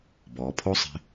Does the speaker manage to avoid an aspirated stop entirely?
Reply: no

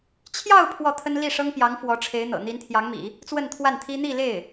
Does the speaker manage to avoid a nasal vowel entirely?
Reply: yes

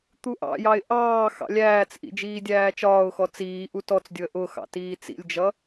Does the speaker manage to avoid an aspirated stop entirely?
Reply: yes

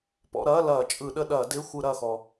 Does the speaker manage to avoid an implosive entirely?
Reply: no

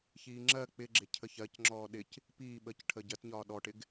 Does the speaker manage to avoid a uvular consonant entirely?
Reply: yes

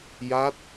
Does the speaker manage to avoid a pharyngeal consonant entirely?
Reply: yes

